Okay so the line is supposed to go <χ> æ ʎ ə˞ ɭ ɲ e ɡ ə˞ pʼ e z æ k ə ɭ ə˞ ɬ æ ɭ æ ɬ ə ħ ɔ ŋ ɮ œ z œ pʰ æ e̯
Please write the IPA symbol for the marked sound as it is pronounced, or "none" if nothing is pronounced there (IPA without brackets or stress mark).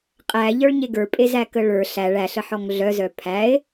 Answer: qʼ